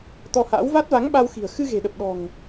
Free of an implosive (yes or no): no